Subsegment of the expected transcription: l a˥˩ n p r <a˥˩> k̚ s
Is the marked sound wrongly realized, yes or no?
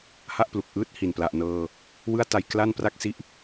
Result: no